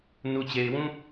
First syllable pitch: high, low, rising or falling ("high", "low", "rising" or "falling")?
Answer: low